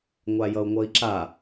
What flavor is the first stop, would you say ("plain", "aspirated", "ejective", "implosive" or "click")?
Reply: click